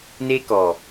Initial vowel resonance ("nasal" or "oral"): oral